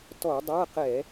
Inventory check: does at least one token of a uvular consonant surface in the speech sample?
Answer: yes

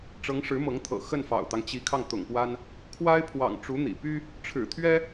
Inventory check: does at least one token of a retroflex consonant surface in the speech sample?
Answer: yes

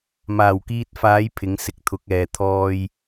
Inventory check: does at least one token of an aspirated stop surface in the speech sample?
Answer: yes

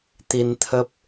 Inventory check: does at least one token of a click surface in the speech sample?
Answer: no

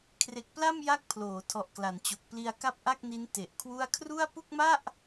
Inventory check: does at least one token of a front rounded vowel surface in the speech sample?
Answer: no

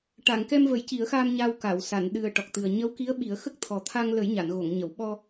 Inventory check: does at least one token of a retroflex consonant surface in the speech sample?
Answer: yes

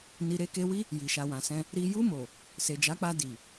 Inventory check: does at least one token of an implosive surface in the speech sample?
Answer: no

